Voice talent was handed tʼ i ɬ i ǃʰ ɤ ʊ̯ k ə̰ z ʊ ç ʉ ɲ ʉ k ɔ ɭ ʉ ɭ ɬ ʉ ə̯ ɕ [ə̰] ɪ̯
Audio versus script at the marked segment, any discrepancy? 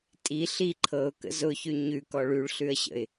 no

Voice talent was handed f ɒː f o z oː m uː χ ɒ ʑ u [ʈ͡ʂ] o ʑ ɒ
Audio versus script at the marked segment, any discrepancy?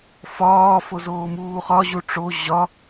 no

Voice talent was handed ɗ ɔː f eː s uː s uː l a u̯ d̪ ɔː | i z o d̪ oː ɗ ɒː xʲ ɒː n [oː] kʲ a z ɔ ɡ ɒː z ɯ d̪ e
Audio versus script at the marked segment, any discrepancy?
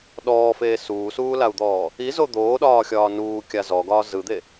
yes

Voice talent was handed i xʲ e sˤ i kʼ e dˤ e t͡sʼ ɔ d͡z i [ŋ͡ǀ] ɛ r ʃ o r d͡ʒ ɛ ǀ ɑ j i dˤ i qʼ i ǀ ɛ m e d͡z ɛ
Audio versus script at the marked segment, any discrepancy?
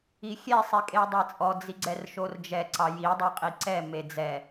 yes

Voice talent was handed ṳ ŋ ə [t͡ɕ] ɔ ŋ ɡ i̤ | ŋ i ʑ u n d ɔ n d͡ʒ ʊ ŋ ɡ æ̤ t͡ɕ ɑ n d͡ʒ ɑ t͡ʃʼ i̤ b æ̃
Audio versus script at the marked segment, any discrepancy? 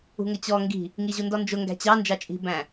no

